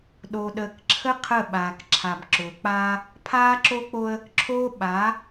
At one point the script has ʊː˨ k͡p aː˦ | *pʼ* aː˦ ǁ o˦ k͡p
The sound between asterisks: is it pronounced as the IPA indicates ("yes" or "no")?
no